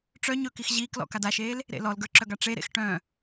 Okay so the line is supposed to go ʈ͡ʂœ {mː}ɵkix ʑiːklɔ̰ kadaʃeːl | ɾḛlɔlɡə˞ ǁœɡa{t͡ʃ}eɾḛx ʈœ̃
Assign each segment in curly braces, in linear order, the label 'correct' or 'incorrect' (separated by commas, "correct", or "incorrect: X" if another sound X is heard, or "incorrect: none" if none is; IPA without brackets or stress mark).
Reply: incorrect: ɲ, incorrect: ʈ͡ʂ